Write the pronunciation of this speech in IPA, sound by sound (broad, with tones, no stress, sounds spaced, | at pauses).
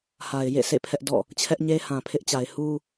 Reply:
h a˨ ɪ̯ j ḛ˦˨ sʰ ḛ˦˨ pʰ ɛ˦ ʔ d ɔ̰˦˨ | t͡ɕʰ ɛ˦ ʔ ɲ e˦ h ã˨ pʰ ɪ˦ ʔ t͡ɕ a˨ ɪ̯ h u˦